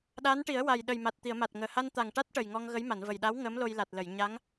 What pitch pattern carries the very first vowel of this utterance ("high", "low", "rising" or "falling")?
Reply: rising